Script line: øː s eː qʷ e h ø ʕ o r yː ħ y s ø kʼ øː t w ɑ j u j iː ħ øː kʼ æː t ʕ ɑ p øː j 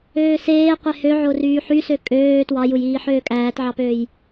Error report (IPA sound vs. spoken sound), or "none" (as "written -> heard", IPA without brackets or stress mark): none